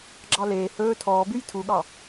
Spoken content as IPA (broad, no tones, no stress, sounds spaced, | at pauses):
ɡ͡ǁ ɑ l eː h ɵː tʰ ɔː b ʉ j tʰ u ɠ ɑ